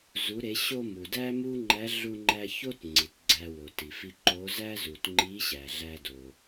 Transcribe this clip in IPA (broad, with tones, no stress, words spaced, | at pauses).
zu˩˧ɾe˩˧ ɕo˧mu˩ dæ˥mu˥ŋ͡ǃæ˧˥ ɮu˧ŋ͡ǃæ˧ ço˥t ŋ͡ǀi˩tɡ͡ǀæ˧ wo˩ti˩fi˧ ǃo˧˥ zæ˥zu˩tŋ͡ǃi˧˥ ɕæ˩ɮæ˧do˩